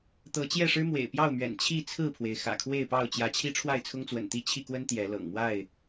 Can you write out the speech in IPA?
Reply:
t̪ɤ˨˦t͡ɕjɛ˥˨ʂɻ̩˦ mwḛ˨˩ɪ̯pjɑ˥˨ʊ̯mɥɛ̰˨˩n t͡ɕʰi˥˨t͡sʰɹ̩˥˨pʰwe˩ɪ̯ xä̰˨˩kʰwe˥˨ɪ̯ pɑ˥˨ʊ̯t͡ɕjä˨˦t͡ɕʰi˦ ʈ͡ʂʰwa˥˨ɪ̯t͡sʰʊ˦ŋt͡swə̰˨˩nt̪i˥˨ t͡ɕʰi˥˨kwə˦n t̪jɛ˨˦lɤ̰˨˩ŋmwa˥˨ɪ̯

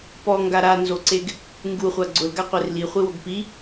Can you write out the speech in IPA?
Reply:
pɔŋɡa ɾanzoǀeɡ | ŋɡuχʷa ɡ͡ǀʊlɡaqʷer liχʷiwoɡ pi

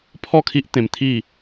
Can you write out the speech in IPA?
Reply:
pʰɔ˥˧kʰi˦ʔ t̪ẽ˧mt̪ʰi˥˧

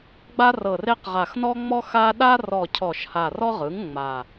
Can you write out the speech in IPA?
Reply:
ɡ͡ba˦rɤ˨˩re˦qʁa˨˩x nɔ˦ŋ͡mɔ˦xa˦ ɗa˦rɔ˨˩ cʰɔ˨˩ʃha˨˩rɔ˦ ʁɯ˩˥ŋŋ͡ma˨˩

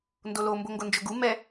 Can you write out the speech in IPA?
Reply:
ndolo mboŋɡond͡ʒɵɡu mɛ

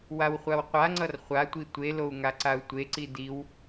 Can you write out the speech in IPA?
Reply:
wawχʷawqʷaŋ͡ǀʌr χʷatʷi tʷelou̯ ŋaǀau̯tʷeǀi diw

